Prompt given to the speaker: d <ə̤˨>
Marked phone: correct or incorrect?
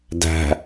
incorrect